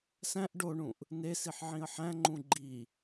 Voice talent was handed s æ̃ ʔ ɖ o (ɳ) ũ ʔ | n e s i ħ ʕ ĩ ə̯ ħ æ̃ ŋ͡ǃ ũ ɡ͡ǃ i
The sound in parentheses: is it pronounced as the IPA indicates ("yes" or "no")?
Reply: yes